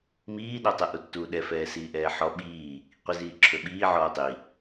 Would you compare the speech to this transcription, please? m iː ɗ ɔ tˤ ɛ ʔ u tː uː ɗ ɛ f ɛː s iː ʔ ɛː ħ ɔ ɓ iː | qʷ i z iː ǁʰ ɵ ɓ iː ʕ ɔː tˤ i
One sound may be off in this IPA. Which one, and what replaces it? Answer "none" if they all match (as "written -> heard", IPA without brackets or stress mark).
none